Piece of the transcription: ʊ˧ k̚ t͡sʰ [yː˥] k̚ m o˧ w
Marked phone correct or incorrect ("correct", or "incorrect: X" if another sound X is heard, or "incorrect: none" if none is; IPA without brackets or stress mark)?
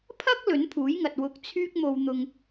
correct